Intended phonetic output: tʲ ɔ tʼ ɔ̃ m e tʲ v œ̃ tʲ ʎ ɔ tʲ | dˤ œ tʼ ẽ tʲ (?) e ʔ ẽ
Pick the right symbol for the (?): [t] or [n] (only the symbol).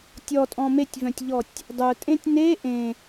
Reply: n